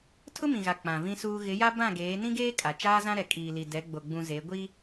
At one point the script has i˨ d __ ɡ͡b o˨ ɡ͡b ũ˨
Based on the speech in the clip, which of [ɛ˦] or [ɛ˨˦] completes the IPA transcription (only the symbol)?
ɛ˨˦